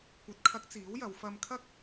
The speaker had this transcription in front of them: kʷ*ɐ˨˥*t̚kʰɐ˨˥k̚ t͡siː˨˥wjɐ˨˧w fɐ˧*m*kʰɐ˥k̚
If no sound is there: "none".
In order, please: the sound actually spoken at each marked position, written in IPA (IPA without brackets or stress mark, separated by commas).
ɐ˨˥, m